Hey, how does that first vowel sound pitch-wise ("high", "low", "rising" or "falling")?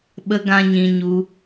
high